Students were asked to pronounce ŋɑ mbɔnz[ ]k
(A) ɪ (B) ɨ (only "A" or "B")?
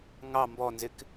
A